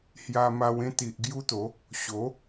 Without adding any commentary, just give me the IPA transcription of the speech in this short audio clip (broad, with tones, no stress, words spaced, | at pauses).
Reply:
hja˧ma˧w ẽ˥˧t̪i˨ʔ ɡju˦t̪o˨˦ | ɕo˨˦